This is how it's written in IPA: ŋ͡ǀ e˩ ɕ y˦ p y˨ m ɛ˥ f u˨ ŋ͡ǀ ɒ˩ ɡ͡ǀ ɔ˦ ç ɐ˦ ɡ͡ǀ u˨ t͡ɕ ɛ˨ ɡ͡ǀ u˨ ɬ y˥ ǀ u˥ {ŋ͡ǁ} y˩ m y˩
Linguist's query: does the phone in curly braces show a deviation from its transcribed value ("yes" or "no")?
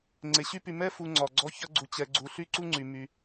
yes